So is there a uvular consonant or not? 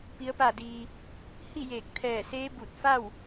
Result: no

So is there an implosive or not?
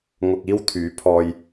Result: no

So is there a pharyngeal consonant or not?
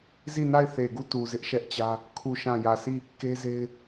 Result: no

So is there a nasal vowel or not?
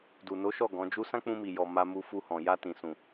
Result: yes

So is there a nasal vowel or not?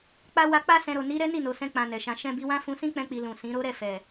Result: yes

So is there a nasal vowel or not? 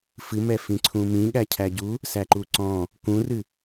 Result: yes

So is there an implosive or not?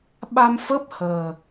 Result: yes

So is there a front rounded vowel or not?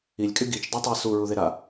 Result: yes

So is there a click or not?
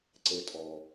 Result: yes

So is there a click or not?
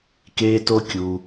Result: no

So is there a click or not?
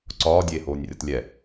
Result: yes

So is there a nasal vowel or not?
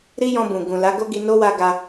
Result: yes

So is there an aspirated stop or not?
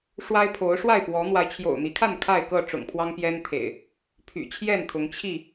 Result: yes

